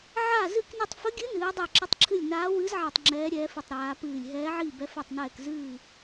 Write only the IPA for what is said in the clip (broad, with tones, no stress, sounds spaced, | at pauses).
ʕ a˥˨ z ɨ˥˨ k n i˥˨ tˤ f ə˧˥ ɡʲ ɨ˧˥ n ɨː˧˥ dˤ ɛ˥˨ ǁ ə˧˥ tˤ ǁʰ ɨ˥˨ lʲ n aː˧˥ w ɨ˧˥ z ʕ a˥˨ tˤ ŋ͡ǁ ɛː˧˥ ɾʲ ɛː˧˥ f i˥˨ tˤ ɾ aː˧˥ p ɨː˥˨ lʲ ɦ ɛː˧˥ ʕ i˥˨ b ɛ˧˥ f ɛ˥˨ tˤ n ɛː˥˨ k z ɨː˥˨